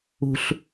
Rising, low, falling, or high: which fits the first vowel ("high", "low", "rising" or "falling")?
low